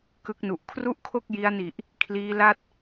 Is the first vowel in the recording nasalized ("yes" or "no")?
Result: no